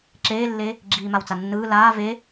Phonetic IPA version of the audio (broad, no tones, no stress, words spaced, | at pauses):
ǁeːlːe | ɡ͡ǁiːmawt͡sanːɯː laː ve